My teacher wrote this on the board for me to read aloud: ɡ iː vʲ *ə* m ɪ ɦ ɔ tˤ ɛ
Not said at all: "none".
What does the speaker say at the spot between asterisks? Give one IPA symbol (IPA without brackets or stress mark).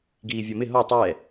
ɔ